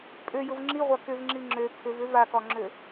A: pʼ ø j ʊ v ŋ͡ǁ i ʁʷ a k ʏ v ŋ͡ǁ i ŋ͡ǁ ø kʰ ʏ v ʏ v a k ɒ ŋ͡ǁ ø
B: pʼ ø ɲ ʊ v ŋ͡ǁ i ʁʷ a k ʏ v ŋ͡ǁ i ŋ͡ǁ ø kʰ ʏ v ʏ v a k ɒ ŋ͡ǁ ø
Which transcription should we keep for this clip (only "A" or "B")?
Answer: A